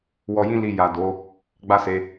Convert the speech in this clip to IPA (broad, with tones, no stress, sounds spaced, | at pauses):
w ɔ˧ j ĩ˦ l i˧ j a˨ d o˨˦ | ɡ͡b a˦ s e˧